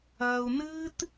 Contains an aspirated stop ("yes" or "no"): no